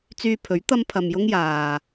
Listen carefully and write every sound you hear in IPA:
t͡syː˧pʰɵ˨˥ɥ t̪ɐ˥mpʰɐ˧mjʊ˥ŋ jaː˨

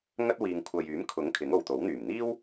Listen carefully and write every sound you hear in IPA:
ŋɐ˥t̚wiː˨ŋkʷʰɐ˨j yː˨˥mkʰʊ˨˥ŋ kʰɪ˨˥ŋo˨wt̪o˨˥wn̪yː˨˩m n̪iː˥w

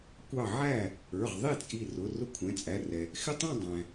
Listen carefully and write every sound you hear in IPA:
kʷɑ˧˩ ʕæ˥˩ | ə˞˩˧˩ʁðˤi˥˩t͡sʼi˧˩ rʊ˩˧˩ rʊ˥˧kʷʰɛ̃˩˧˩t͡sʼæ˩˧˩rɛ˩ | xɪ˥˧tˤɛ̃˥˧ dˤæ̃˩

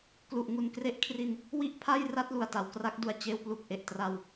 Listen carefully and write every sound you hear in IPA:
klu˨˩ʔŋu˨˩nkre˥˩ʔkʰri˧n | wi˥˩ʔpʰa˥˩jra˥˩t̚ lu˨˩a̯ta˩˦wkra˦˥k̚du˧a̯ t͡ɕeː˧wplu˨˩k̚ ʔe˨˩ʔ tra˧w

